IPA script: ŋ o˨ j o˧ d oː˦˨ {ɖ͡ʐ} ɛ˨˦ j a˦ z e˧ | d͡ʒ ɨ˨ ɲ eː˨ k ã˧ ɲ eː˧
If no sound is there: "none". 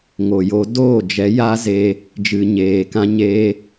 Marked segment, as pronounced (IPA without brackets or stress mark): d͡ʒ